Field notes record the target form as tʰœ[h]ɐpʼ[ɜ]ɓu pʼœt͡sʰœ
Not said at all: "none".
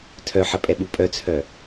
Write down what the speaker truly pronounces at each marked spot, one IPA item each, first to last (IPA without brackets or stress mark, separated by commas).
ħ, ɛ